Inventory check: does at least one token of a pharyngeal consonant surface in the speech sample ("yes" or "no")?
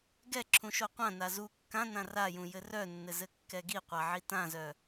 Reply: yes